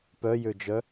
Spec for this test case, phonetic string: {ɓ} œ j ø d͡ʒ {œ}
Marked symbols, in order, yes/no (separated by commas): no, yes